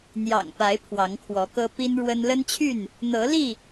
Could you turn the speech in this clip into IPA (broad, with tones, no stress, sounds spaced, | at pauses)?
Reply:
n̪ j ɑ̰˨˩ ŋ p a˨˦ ɪ̯ pʰ w ɑ˨˦ ŋ kʰ w ɔ˨˦ k ɤ˦ p i˦ n ɻ w ə˦ n l ə˦ n t͡ɕʰ y˥˨ n | n̪ ɤ˨˦ l i˥˨